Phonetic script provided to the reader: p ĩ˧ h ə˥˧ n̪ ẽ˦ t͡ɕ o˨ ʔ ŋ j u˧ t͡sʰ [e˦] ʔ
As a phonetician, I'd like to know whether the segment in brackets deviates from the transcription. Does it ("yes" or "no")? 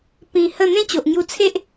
no